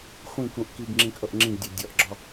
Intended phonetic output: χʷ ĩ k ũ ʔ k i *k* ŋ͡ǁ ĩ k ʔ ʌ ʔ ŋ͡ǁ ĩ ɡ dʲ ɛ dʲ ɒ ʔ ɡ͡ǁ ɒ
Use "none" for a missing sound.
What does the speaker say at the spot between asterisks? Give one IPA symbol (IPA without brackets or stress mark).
ɡ